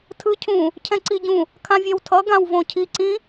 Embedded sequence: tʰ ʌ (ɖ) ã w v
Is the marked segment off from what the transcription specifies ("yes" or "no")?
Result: yes